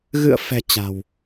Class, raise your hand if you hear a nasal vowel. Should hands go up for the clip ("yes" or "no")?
no